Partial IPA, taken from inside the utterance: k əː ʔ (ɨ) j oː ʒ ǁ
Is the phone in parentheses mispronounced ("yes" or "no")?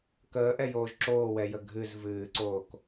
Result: yes